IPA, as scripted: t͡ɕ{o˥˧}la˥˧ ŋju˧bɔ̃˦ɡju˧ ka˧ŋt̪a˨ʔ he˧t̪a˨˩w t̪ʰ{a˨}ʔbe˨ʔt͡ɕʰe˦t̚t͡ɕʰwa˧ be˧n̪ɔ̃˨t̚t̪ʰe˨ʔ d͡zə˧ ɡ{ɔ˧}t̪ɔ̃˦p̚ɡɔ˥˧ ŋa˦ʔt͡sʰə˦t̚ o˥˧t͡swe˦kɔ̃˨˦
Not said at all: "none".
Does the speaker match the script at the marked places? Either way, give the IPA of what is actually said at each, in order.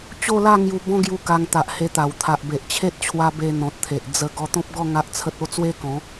o˥˧, a˨, ɔ˧

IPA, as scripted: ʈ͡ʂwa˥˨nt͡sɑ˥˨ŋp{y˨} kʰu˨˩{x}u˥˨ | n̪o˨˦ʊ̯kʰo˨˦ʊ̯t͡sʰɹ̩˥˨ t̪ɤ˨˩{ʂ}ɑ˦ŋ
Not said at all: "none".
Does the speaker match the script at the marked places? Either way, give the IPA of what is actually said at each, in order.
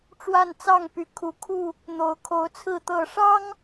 y˨˦, kʰ, ʂ

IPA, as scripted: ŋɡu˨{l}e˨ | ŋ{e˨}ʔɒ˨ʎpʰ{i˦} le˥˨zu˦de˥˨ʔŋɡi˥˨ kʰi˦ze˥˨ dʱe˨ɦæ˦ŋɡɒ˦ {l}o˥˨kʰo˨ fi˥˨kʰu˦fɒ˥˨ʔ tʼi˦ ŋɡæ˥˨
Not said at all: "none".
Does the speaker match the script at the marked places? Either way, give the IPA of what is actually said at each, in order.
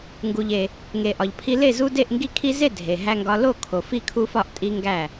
ʎ, e˨, i˦, l

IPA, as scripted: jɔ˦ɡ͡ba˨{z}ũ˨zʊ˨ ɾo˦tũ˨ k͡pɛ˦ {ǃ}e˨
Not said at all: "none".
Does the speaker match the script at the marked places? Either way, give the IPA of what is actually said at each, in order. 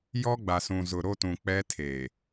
s, tʰ

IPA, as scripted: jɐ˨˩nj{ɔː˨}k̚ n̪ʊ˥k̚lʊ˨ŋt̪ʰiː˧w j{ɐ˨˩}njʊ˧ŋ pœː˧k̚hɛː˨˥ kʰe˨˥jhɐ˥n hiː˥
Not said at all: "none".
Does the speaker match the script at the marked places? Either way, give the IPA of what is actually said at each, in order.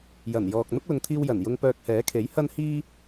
ɔː˨, ɐ˨˩

